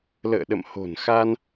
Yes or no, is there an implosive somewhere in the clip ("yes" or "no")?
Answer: yes